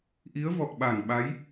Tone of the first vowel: rising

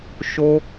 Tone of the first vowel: high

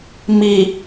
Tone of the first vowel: low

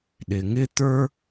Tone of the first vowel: low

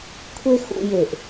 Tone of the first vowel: high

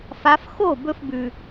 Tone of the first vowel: rising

